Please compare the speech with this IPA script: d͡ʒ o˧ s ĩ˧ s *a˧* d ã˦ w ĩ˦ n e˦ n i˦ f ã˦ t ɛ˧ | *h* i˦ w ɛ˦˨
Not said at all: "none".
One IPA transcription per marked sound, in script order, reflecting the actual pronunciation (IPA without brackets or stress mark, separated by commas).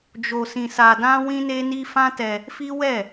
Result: a˧, f